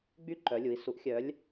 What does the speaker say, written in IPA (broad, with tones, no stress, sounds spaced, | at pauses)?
ɡ͡b y˥˩ ǃ œ˨˥ lʲ u˩˧˩ i̯ s u˨˥ ʔ xʲ œ˨˥ lʲ